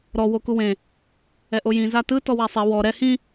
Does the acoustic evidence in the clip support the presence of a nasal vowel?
yes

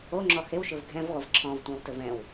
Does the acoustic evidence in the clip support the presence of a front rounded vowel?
no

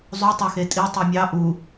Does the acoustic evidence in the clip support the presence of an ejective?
yes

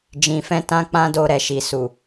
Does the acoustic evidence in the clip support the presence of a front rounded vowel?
no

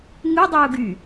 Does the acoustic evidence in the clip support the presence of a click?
no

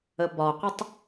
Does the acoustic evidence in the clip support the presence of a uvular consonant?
yes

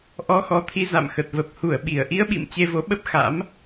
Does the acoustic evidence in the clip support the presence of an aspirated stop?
yes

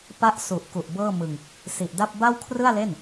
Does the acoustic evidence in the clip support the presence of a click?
no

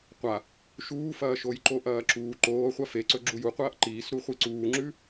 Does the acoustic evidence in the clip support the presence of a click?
yes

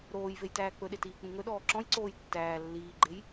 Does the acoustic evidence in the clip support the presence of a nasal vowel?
yes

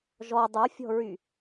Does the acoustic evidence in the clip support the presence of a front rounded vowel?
yes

